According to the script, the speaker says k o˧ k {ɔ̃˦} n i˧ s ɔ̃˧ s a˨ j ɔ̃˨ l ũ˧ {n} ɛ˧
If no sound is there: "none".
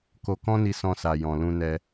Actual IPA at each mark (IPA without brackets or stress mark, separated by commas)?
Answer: ɔ̃˦, n